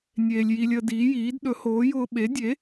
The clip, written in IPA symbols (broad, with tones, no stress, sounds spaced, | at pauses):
nʲ eː˧ lʲ j i˧ lʲ əː˧ d iː˨˥ j iː˨˥ d ɗ ɵ˨˥ h oː˨˥ j ʊː˧ ɓ e˨˥ dʲ e˨˥